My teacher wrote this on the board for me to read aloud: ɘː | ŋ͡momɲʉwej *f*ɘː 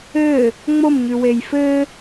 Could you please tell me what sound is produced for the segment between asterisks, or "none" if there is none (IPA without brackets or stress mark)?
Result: f